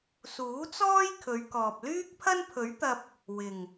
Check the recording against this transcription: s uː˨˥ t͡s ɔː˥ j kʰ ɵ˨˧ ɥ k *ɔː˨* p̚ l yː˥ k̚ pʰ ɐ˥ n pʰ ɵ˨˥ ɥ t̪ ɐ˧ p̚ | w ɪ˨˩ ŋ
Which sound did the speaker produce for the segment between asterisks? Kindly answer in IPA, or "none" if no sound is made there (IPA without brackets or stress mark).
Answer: ɔː˨